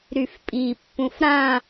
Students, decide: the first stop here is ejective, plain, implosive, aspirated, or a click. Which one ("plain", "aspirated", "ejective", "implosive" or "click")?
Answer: ejective